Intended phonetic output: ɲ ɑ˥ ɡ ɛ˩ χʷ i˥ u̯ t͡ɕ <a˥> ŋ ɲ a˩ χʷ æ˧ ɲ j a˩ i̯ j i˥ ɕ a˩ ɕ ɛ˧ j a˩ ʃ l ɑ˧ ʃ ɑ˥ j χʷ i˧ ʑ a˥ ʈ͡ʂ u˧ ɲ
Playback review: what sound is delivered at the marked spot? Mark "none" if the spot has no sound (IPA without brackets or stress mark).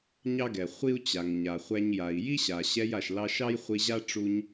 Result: a˩